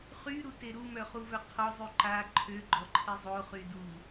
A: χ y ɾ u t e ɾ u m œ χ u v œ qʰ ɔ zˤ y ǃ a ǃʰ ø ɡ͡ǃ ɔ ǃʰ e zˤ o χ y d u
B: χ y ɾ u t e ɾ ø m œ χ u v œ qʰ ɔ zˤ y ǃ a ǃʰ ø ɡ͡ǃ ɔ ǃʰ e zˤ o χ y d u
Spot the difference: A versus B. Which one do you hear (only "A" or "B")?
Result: A